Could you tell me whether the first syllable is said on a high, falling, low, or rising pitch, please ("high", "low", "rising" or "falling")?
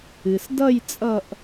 low